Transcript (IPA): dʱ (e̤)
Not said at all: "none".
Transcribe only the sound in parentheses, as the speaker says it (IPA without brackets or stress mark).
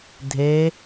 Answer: e